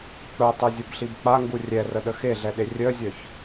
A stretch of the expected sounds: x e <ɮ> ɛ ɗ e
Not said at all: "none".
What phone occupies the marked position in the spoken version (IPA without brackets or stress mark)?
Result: ɮ